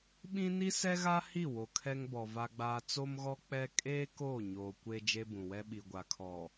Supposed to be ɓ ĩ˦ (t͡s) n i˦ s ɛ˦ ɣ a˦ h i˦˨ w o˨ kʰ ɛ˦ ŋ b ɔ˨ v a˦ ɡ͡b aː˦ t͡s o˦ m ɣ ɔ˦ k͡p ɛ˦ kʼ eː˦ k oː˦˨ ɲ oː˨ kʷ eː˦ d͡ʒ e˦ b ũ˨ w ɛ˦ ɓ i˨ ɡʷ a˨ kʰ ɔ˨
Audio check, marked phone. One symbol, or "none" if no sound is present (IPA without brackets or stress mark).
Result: none